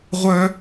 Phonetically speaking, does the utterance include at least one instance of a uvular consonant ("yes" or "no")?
yes